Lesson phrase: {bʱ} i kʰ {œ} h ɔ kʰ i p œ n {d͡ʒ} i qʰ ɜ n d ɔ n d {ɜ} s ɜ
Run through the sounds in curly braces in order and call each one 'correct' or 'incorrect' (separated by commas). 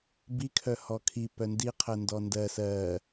incorrect, correct, incorrect, correct